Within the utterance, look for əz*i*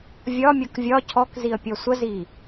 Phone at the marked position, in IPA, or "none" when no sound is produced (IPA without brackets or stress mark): i